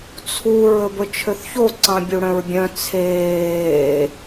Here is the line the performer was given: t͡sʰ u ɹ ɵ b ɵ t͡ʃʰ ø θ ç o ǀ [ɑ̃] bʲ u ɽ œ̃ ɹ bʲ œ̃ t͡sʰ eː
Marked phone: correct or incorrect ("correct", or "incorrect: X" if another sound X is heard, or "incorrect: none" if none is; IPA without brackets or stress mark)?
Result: correct